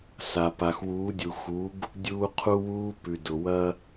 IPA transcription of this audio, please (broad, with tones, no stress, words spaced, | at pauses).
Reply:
sa˨ pa˨xwuː˨˦dʲu˨xu˨˦ɡ | dʲuː˦qʰu˦wuː˦ pʉ˨dʊ˨wɐ˦